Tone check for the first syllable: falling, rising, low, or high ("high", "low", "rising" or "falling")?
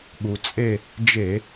low